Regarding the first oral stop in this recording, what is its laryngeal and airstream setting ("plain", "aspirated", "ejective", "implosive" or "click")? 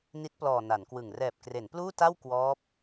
plain